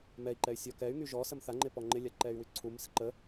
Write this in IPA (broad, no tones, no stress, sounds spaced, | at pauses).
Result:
m ɛ i̯ ǃ ɛ y̯ sʲ ɔ k ɛ y̯ ŋ y ʒ ɔ s ə m θ a ŋ͡ǃ ɪ p ɔ ŋ͡ǃ ɪ lʲ a ǃ ɛ y̯ w y ǀʰ u m s ɪ ǃ ə